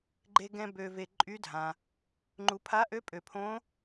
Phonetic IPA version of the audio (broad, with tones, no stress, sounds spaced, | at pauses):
ɡ͡ǃ e˧ ɡ ɛ̃˧ b ø˧ v e˧ ǃʼ y˦˥ dʱ ã˧ | ŋ͡ǃ u˧ pʰ a˦˥ ʔ ø˦˥ pʼ ø˧ pʰ õ˦˥